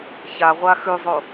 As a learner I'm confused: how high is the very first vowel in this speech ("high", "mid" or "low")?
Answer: low